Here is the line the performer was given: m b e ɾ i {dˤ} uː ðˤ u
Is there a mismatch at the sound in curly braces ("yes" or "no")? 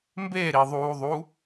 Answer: yes